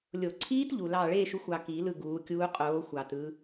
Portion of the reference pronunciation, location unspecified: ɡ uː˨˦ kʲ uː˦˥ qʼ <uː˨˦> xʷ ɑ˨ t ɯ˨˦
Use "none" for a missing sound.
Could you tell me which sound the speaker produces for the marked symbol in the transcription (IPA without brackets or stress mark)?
oː˨˦